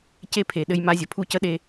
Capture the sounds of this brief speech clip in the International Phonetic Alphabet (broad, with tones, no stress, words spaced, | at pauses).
ce˦pʰe˨ ɗɘ˦jma˦zʲə˨ pʰu˦cə˦ɗe˦